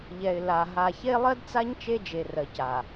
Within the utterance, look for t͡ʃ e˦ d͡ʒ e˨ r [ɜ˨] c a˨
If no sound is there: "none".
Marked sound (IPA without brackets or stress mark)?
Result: ɜ˨